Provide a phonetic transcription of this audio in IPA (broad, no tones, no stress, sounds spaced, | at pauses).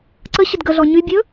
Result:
ǀ ə ɕ ə d ɡ ə ɮ ɔ ɲ y bʲ ɵ